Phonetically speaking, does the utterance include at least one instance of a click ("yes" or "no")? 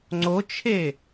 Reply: yes